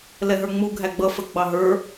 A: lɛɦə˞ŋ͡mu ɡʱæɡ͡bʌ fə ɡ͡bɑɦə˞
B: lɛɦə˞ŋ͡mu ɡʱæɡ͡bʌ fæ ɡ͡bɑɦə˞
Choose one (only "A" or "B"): A